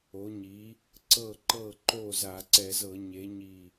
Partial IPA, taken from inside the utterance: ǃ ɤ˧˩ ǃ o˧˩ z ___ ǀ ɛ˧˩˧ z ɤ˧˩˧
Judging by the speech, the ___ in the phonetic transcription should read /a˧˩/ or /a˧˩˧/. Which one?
a˧˩˧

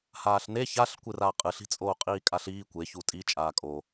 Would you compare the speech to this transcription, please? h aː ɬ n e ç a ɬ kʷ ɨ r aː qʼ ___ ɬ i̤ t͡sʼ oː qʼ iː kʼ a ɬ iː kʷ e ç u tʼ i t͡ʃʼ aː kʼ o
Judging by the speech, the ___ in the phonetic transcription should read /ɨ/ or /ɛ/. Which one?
ɨ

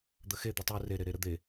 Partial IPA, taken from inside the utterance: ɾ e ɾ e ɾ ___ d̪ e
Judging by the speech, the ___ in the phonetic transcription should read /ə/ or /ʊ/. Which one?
ə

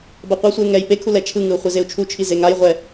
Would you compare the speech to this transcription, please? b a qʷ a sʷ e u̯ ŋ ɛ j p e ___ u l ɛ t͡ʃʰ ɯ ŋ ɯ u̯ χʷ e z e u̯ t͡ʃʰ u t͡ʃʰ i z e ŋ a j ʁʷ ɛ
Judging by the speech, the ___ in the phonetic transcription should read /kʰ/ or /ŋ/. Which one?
kʰ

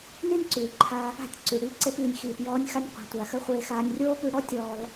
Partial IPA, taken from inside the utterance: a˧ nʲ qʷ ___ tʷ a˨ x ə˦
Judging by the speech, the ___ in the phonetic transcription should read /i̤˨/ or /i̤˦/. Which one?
i̤˨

